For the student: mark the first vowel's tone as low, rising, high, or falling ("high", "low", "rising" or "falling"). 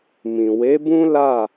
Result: low